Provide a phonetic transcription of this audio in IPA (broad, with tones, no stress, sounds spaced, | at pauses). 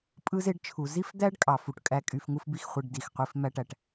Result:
pʼ ɯ˥ z e˥ ɖ t͡ʃʰ u˩ z i˥ f d̪ æ˥ ɖ kʼ ɑ˩ f u˩ ʈ kʼ æ˧ kʼ y˧ f ŋ u˥ f b i˥ x χʷ e˧ ɖ d i˩ x qʷ i˧ f m æ˥ ʈ æ˩ ʈ